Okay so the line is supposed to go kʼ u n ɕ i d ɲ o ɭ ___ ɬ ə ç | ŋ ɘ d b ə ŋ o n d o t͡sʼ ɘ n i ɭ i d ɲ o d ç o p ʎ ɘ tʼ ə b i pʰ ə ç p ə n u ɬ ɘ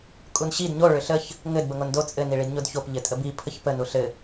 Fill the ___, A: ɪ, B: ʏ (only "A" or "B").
B